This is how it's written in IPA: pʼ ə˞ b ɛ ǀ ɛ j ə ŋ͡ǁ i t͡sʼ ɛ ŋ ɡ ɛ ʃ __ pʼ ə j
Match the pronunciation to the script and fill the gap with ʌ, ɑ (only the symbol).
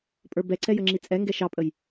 ɑ